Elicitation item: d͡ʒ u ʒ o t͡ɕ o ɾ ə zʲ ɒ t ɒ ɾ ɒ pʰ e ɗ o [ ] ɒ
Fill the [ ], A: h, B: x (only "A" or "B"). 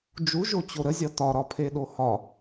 A